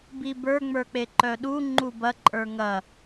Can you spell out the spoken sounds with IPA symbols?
b i b ə˞ ŋ͡m ə˞ k͡p e ǃ œ ɗ u ŋ͡ǃ u b ɐ ǃʼ ə˞ ŋ ɐ

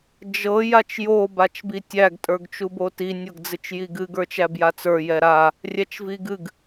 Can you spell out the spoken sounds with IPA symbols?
d͡ʒ ɤ j a t͡ʃ j o b a t͡ʃ b i tʲ æ ɡ tʼ ə˞ ɡ t͡ʃ u b o t i nʲ ɤ ɡ d͡z ɨ t͡ʃ j i ɡ ɨ ɡ ə˞ t͡ʃ æ b j a t͡s ə˞ j ɛ ɾ a | rʲ æ t͡ʃ v i ɡ ɨ ɡ

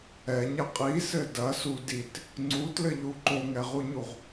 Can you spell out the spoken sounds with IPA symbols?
ɛ ɲ ɐ qʼ i s ɘ d ɐ s u d i t | ŋ͡ǀ u t l ɘ ʎ u ǃ o ŋ ɛ ʁ u ɲ u ʁ

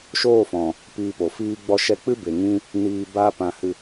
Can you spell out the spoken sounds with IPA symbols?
ʃ oː˦˨ f ɔ̃˨ | p iː˧ p o˨ f iː˦ ɡ͡b ɔ˧ ʃ ɛ˧ k͡p ɨ˦ b e˨ ŋ ĩ˦ | n iː˧ b a˦ p ã˧ h ɨ˧

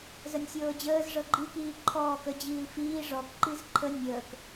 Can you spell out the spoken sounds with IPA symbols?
z ə nʲ sʲ ɤː d͡ʑ əː z ʐ ɤ ɡ͡ǃ i k iː ǃʰ ɔː k ə d͡ʑ iː l f iː ʐ ɔ k ǃ i z ǃʰ ə nʲ əː k

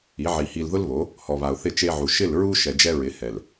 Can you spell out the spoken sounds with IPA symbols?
i˨˦ ʕ i˨ h i˨ l ð ʊ˦ l β o˨˦ | h ɔ˨ β a˨ ʊ̯ θ ɪ˦˨ t͡ʃ e˦ ʕ u˨ ʃ ɪ˦˨ l ɹ u˦ ʃ ɛ˨ d͡ʒ ɛ˦ ɹ ɪ˨˦ h ɛ˨ l

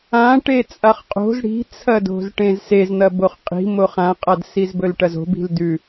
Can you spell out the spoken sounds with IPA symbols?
ã ʈ e t͡sʼ a χ qʼ o̤ z ɽ i̤ t͡sʰ ɐ d o̤ z ʈ ẽ z s e z n̪ ɐ b o χ qʼ i̤ m o χ ã qʼ a d s i z b ɵ l ʈ ɐ z o̤ b i̤ l d ʉ

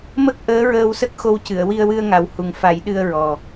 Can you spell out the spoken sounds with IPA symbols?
m ə˦˥ k̚ ʔ əː˧˥ ɹ əː˧ w s ə˦˥ k̚ x o˧ w c ɨ˨˩˨ ə̯ w i˧ ə̯ w ɨ˧ ə̯ ŋ a˨˩ w h u˨˩ ŋ f a˨˩˦ j ɗ ɨ˧ ə̯ ɹ ɔ˨˩

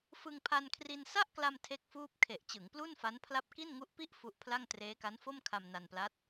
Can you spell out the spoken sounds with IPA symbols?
f ɯ˧ ŋ pʰ a˧ n kʰ r i˧ n s a˥˩ ʔ k l a˧ m tʰ e˥˩ k̚ f uː˥˩ p̚ kʰ e˨˩ ʔ t͡ɕ ɯ˩˦ ŋ p l u˥˩ n f a˦˥ n pʰ l a˦˥ p̚ k i˥˩ n ŋ u˦˥ ʔ p i˥˩ ʔ f u˦˥ ʔ pʰ l a˥˩ ŋ t r eː˦˥ k a˦˥ n f o˥˩ m kʰ a˧ m n a˧ n p l a˦˥ t̚

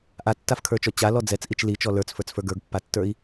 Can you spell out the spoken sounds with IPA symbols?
ʔ a tː a f kʰ ə˞ t͡ʃ ɔ t͡ɕ a l ɔ d͡z ɛ t͡s ʔ i t͡ʃ l i t͡ʃ ɔ l ə˞ t͡s f ə˞ t͡s f ə˞ ɡ ə˞ ɡ pː a tː ə˞ i̯

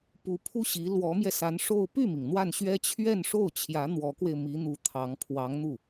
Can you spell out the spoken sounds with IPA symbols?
p u˧˥ pʰ u˥ ɕ i˧˥ l w ɔ˧˥ m j ɛ˧ s a˧˥ n ʂ o˥˧ ʊ̯ p y˥˩ m i˩ ŋ n̪ w a˥˩ n ɕ ɥ ɛ˥ t͡ɕʰ ɥ ɛ˥˧ n ʂ o˥˩ ʊ̯ t͡ɕʰ j ä˧˥ n̪ w ɔ˧˥ k w e˧ ɪ̯ m i˧˥ n̪ u˧˥ t̪ʰ ɑ˧˥ ŋ pʰ w ɑ˧˥ ŋ n̪ u˥˩

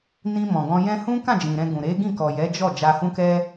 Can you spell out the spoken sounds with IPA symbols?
n ĩ˧ m ɔ̃˨ ɡ ɔ̃˧ j ɛ̃˦ h ũ˦ k ã˦˨ d͡ʒ ĩ˨ ɾ ɛ̃˧ ɡ ũ˨ ɾ e˨˦ ɡ ĩ˦˨ k ɔ˨ j ɛ˨˦ d͡ʒ ɔ˦˨ d͡ʒ a˧ h ũ˦ k ɛ˦

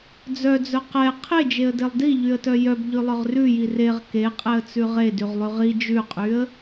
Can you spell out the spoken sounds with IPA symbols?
d͡z œ d͡z œ q ɛ qʰ e d͡ʒ e ə̯ d e lˠ d i ʎ y ə̯ t œ j œ b ʎ ʉ lˠ œ ʁ r ʉ j i r e ʁ k e qʼ ɛ ə̯ t͡s ʉ ʁ e d y ʁ lˠ y ʁ i d͡ʒ ʉ qʼ y ə̯

